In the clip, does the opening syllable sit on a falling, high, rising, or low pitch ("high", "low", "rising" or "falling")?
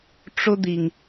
high